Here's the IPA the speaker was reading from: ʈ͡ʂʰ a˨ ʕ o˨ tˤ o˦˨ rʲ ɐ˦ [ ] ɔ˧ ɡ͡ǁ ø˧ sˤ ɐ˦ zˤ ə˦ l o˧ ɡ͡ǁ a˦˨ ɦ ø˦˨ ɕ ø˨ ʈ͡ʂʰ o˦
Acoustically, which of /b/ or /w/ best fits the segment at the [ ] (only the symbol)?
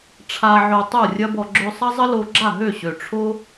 b